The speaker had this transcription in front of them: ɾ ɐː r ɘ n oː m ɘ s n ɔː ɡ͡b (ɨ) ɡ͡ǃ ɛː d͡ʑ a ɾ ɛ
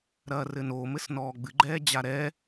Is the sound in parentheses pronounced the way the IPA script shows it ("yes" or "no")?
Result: yes